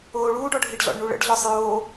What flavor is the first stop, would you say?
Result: plain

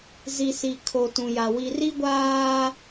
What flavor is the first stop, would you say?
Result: aspirated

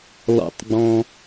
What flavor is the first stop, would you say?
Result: plain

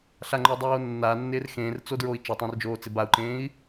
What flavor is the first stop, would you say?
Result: click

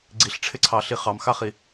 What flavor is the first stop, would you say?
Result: click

